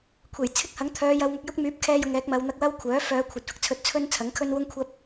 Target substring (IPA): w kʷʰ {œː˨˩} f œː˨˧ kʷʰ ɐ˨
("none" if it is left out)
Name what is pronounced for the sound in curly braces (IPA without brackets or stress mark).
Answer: œː˨˥